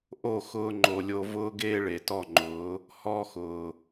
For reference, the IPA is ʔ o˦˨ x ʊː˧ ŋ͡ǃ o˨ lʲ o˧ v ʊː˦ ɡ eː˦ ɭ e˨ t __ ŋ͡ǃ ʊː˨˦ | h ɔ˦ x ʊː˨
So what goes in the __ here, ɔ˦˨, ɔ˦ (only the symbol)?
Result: ɔ˦˨